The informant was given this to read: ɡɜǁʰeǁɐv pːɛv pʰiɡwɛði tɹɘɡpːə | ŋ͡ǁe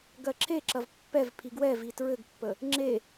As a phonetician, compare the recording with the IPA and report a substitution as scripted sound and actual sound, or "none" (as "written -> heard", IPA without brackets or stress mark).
ð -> v